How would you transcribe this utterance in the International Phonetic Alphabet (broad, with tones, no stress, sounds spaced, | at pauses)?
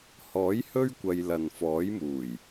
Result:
h ɔː˨˥ j h ɵ˥ ɥ kʷ ɐ˧ j l ɐ˨ n f ɔː˨˥ j m uː˨˩ j